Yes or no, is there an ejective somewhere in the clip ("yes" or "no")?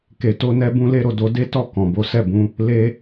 no